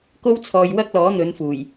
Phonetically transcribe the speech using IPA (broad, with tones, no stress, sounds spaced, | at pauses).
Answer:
k o˥ w t͡sʰ ɔː˧ j w ɐ˥ k̚ l ɔː˨˥ n̪ ɵ˨˧ n f uː˨˩ j